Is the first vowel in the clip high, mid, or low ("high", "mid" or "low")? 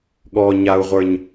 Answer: mid